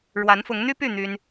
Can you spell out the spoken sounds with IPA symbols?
ɻwa˧˥nfʊ˧˥ŋn̪y˥py˥˩ n̪y˥n

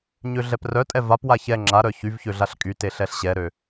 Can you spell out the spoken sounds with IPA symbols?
ɲøɮɛprœtʼɛ vapwa çɛ ŋ͡ǁa ɾœçyvçø ɮaɬkʼyte ɬɛɬɕɛɾø

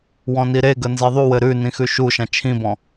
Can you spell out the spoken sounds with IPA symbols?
wɔ̃niɾeɡə nzeðˤuwɘ ɾʉnĩ xʉʃuʃã t͡ʃʰĩbɔ̃

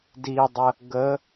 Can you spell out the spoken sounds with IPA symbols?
didˤə | ɡə

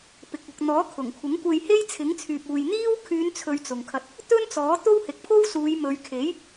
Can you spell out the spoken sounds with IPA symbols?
pɪ˨k̚ʊ˨k̚n̪ɔː˨˥ kʰʊ˨˩ŋkʷʰɪ˨˥ŋkʷe˧jhe˥j t͡sʰɪ˨˥ŋt͡sʰyː˨p̚uː˨j n̪iː˥w kʰyː˨˧n t͡sʰɵ˧ɥt͡sʊ˨ŋkʰɐ˧t̚ | t̪ɵ˥nt͡sɔː˨˥ t̪o˥whɪ˨˥k̚pʰo˥wsuː˨˧j mɵ˨ɥkʰe˨˥j

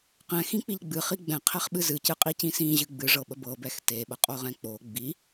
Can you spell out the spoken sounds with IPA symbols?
qɛ̃xĩk͡piʎ ɡ͡bɨχi ɡ͡bɛ̃qʰɛχɓɨ zɨcɨqʼicĩ sĩʑɨ ɡ͡bɨʐɤɓə bɤbɛx teɓəqʼoʁɛ̃ k͡po ɡ͡bi

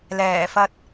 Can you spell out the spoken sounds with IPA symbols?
lɛː˨˩fɐ˧t̚

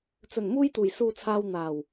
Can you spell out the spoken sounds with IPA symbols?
t͡sɵ˨˩n muː˧jt̪uː˨˩j suː˨t͡sʰaː˨w n̪aː˨˩w

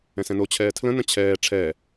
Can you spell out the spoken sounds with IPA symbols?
ɛ̃sɛ̃no t͡ɕʰɛːtʰlə̃ nə̃t͡ɕʰɛː ʈ͡ʂʰɛ

